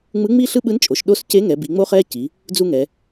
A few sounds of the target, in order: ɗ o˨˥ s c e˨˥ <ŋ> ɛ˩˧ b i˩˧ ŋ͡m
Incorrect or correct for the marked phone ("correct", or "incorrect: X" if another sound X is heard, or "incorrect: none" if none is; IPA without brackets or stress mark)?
correct